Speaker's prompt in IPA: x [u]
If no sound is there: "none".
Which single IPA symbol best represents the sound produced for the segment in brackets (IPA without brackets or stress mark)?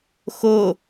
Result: o